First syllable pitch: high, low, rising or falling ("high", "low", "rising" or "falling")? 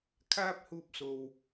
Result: high